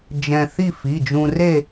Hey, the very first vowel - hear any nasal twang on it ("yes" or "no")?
yes